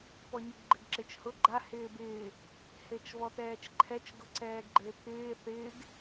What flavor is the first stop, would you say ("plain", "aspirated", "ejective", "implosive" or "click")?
plain